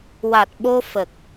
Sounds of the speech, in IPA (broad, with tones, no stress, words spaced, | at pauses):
wa˨˩t̚ ɓo˧fə˨˩k̚